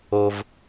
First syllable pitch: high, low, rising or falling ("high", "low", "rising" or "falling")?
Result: high